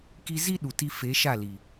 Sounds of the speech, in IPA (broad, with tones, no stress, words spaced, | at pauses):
ki˧zi˦ ɗu˨ ti˧fe˨˦ ʃa˦˨li˨